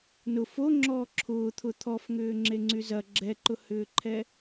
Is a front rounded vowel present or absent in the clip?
present